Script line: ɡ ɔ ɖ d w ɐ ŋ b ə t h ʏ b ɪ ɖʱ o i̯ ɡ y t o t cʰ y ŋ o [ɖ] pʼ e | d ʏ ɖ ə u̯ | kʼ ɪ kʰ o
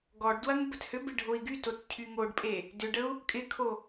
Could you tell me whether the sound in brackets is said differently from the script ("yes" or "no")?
no